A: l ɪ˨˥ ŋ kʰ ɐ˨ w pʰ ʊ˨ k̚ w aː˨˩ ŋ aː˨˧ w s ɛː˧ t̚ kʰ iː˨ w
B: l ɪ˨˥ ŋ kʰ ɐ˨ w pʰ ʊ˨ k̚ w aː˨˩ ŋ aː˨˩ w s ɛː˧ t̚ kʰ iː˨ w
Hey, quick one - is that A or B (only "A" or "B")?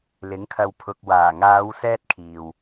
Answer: A